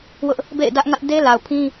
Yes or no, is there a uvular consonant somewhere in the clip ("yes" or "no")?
no